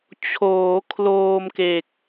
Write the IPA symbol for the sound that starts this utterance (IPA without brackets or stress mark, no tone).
t͡ɕʰ